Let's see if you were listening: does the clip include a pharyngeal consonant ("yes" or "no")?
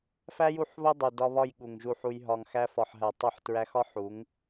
yes